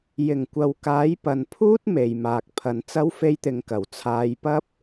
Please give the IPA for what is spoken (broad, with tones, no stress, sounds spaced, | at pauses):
j ɪ˨˩ ŋ kʷ ɐ˨ w k aː˨˥ j p ɐ˨ n pʰ uː˥ t̚ m e˨ j m aː˨ k̚ pʰ ɐ˨ n t͡s ɐ˥ w f e˥ j t̪ ɪ˧ ŋ k ɐ˨˩ w t͡sʰ aː˨˧ j p ɐ˥ p̚